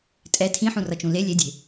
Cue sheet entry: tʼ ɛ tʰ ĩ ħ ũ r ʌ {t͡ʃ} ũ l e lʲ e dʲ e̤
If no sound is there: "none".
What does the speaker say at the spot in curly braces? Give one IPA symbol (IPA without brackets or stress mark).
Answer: t͡ʃ